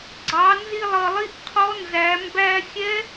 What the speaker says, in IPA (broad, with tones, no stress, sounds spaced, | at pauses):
ɡ͡ǀ ɑ˩˧ n z i˧ lˠ ʌ˩ lˠ i˧˥ ʔ qʰ ɔ˧˥ n z æ˩˧ m b æ˧ xʲ ɛ˧˥